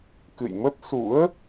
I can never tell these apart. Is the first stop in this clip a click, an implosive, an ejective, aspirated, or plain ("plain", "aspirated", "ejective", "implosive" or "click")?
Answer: plain